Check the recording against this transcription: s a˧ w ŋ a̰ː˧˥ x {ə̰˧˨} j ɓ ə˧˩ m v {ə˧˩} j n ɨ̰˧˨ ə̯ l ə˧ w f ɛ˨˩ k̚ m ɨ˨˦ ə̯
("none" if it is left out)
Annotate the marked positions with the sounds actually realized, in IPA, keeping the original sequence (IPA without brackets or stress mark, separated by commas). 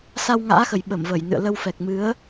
ə˨˩, ə˧˩